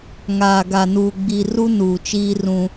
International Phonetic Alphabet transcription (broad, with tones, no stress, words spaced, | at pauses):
ŋaː˨ɡa˨nuː˨ ɡ͡bi˨ ru˦nuː˨t͡ʃiː˦ rũ˦